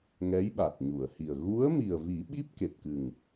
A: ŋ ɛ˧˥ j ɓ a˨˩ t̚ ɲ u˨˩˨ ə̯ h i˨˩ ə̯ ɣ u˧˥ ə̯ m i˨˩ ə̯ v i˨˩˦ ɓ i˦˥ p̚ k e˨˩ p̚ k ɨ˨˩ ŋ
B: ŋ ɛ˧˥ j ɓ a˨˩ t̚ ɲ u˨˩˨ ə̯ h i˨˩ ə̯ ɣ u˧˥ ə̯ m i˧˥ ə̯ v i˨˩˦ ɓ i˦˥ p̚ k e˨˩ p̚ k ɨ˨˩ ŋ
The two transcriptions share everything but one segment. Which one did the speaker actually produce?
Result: A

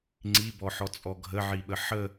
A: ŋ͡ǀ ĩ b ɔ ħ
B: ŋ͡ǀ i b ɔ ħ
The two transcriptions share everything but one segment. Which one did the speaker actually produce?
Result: B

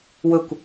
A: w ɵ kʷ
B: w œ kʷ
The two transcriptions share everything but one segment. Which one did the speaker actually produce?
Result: A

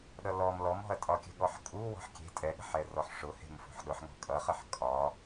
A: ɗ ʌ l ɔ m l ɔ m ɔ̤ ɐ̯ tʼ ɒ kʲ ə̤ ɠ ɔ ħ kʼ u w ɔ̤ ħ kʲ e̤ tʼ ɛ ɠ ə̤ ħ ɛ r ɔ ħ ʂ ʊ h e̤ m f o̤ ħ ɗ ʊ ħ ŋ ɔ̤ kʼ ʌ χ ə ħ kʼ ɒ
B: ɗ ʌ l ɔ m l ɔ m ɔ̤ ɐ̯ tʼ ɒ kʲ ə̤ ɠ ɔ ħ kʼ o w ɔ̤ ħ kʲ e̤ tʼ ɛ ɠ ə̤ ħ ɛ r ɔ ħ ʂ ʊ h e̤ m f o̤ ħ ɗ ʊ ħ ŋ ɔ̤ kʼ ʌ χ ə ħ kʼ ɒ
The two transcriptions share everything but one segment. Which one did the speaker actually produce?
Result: A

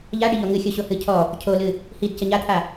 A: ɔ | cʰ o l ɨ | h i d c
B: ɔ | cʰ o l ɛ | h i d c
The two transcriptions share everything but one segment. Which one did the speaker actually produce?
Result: A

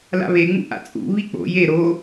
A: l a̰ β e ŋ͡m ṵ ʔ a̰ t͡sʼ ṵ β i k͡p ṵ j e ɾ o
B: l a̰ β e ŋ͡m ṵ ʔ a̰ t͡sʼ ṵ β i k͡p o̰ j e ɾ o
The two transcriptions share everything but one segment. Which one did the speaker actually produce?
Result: B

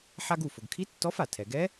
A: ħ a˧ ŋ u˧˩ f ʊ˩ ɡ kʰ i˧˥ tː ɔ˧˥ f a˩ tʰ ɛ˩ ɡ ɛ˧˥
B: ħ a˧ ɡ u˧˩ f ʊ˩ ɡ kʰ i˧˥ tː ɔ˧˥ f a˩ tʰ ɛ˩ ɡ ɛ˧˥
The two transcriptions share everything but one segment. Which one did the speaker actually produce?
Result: B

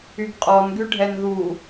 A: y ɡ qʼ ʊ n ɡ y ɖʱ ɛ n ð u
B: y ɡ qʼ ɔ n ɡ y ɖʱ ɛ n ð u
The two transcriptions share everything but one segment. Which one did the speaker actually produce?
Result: B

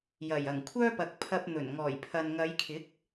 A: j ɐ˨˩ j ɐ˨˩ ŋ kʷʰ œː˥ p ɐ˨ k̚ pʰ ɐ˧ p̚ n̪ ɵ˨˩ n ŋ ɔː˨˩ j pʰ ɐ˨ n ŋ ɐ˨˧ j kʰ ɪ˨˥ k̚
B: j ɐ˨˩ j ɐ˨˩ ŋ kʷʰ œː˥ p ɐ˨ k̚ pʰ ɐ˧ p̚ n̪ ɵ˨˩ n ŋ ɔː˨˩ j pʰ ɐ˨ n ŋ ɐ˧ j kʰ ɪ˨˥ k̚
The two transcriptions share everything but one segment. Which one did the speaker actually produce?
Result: A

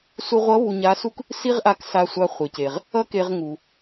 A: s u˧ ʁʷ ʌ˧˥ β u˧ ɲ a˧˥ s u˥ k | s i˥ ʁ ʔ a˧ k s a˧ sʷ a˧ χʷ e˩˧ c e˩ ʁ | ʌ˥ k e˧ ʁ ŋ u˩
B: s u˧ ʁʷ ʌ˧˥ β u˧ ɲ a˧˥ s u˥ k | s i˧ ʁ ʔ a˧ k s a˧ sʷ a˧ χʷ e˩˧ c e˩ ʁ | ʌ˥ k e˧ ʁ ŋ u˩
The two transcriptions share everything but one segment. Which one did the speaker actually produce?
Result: A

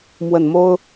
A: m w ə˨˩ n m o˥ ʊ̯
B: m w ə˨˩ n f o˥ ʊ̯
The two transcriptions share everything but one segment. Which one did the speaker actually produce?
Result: A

